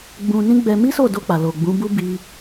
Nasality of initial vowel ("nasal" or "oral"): nasal